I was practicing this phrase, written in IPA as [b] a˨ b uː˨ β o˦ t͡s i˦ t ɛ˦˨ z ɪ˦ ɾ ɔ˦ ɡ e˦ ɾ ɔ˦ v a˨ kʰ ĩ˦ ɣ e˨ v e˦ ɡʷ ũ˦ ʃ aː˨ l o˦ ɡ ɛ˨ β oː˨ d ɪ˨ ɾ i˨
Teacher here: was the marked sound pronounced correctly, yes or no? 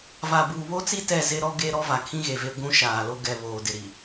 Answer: no